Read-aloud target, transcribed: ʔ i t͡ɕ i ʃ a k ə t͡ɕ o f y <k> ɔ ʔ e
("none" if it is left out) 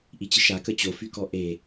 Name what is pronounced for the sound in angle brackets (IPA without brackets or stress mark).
k